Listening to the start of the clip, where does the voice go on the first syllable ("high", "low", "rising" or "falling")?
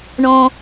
low